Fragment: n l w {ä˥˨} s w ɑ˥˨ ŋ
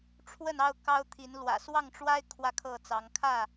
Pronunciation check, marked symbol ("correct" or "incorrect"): incorrect